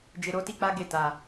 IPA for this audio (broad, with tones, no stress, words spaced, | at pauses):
d͡ʒe˧ɾo˦ti˦k͡pa˦ ɡe˦˨ta˨